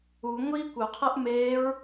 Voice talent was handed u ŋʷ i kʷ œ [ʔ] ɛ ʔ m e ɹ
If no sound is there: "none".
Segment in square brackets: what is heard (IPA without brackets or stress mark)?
qʰ